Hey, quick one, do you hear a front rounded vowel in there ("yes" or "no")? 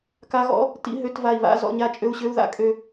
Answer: yes